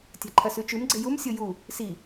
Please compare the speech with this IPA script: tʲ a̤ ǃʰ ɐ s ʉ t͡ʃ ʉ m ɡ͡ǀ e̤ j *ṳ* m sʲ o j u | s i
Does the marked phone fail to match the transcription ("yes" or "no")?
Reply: yes